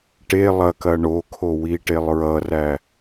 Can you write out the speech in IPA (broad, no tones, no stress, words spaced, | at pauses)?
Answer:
ʈe lˠɐkɐ ɳokʰowiʈelˠ ɹʌræ